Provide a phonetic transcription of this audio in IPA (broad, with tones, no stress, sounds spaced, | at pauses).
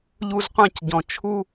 ʎ u˧ z qʷ ã˧ c ɟ ɔ̃˨ t͡ʃʰ u˧